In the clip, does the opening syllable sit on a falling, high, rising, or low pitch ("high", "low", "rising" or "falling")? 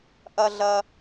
low